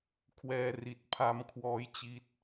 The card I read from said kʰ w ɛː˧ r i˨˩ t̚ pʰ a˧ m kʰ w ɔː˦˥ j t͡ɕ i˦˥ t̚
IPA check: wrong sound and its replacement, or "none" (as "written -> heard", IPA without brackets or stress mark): none